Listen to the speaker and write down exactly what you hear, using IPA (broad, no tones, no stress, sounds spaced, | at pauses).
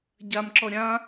ɟ a m ǁ ɔ ɾʲ ã